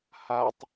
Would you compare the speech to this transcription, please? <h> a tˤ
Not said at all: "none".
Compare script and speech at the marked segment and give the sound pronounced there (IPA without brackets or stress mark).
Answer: h